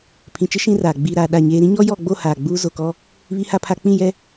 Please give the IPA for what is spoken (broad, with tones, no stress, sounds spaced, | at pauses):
pʰ ĩ˨ t͡ʃ ɪ˦ ʃ ĩ˦ r aː˨ ɡ͡b iː˨ ɾ aː˨ ɗ a˦˨ ɲ eː˦ ɾ ĩ˦ ɲ ɔ˦ j ɔ˦˨ ɡ͡b o˦˨ h aː˨ ɡ͡b uː˦ z o˨ k ɔ˦ | β i˦ h a˦ pʰ a˦ k͡p ĩ˦˨ j ɛ˦